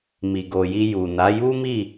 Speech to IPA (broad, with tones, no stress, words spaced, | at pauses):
mi˨ɡo˨ji˧ ju˨na˨˦ ju˦mi˦˨